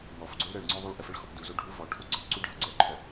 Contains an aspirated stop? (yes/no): yes